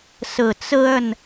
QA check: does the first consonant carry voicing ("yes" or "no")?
no